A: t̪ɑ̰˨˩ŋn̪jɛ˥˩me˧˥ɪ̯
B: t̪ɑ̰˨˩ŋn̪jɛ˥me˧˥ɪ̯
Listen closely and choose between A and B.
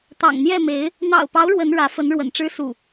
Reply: A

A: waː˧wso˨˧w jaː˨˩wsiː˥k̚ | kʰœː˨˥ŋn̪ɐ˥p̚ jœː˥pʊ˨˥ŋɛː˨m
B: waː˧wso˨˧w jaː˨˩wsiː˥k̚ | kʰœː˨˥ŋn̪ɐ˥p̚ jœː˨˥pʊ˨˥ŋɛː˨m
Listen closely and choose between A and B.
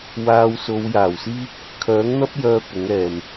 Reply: A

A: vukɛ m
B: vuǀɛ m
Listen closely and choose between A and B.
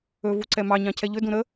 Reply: B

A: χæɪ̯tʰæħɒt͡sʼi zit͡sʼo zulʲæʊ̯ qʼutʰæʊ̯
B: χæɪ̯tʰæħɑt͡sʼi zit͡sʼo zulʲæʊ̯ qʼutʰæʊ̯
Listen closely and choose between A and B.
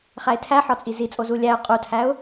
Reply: A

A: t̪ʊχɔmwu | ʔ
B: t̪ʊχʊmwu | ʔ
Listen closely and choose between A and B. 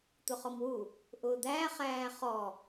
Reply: A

